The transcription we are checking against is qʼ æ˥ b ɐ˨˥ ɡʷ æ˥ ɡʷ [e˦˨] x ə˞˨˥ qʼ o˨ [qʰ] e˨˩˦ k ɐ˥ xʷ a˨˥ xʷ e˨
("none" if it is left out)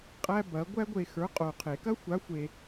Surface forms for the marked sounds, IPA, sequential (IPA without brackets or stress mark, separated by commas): e˦˨, qʰ